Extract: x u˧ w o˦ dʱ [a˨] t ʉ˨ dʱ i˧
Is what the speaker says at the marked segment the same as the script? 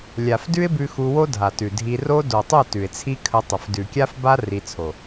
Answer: yes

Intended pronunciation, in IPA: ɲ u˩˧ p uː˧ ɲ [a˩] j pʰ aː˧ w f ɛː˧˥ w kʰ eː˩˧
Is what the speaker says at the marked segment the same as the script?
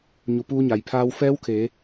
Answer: yes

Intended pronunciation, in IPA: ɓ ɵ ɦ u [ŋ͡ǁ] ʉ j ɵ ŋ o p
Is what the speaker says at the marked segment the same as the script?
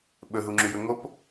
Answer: yes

